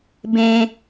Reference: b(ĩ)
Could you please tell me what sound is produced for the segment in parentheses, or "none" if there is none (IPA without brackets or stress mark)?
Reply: ẽ